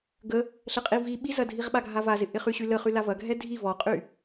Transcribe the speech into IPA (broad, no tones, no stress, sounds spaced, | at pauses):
ɡ ə | ɬ ə qʼ i v i ɓ i z ɐ dʱ i ʁ ɓ a ɡʱ a v a z ɪ ʔ ɪ χ y ɕ y l ə χ y l a v ɐ ɡʱ ɛ dʱ i v ɔ qʼ y